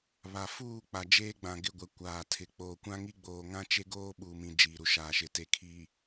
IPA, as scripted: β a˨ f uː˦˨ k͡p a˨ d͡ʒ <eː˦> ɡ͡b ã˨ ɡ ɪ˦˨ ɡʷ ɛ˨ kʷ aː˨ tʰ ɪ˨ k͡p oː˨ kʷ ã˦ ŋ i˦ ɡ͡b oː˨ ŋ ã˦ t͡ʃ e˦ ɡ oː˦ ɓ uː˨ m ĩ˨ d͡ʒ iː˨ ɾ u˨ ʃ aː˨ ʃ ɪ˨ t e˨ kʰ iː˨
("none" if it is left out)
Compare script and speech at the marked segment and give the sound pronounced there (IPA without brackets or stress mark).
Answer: eː˦